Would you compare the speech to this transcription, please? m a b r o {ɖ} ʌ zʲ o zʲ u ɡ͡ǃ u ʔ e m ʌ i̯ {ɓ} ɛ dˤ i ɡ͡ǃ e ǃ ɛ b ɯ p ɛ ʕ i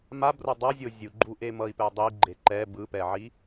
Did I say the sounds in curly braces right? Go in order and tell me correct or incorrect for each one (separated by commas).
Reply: incorrect, incorrect